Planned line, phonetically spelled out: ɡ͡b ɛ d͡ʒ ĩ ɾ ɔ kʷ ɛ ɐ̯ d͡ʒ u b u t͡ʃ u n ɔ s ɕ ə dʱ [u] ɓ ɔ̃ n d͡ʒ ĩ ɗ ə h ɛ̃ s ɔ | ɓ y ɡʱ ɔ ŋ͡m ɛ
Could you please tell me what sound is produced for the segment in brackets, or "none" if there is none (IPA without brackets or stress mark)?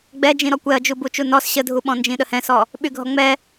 u